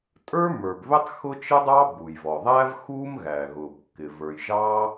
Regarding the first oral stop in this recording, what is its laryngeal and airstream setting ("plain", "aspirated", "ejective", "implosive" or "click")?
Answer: ejective